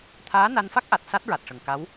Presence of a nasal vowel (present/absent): absent